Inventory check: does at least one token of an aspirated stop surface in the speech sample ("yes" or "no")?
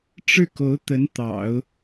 no